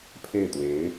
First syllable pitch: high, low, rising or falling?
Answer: falling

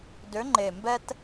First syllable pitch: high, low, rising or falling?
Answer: rising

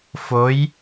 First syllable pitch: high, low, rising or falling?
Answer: rising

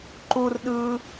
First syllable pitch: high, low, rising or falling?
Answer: high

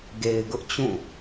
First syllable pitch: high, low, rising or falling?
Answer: low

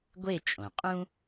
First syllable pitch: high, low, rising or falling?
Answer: falling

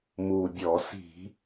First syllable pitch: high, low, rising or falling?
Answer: low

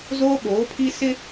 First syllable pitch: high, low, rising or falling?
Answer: high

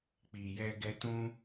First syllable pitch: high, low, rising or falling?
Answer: low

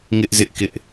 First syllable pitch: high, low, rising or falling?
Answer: high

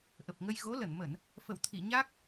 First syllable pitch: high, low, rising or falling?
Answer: low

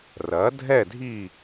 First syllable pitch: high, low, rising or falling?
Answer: rising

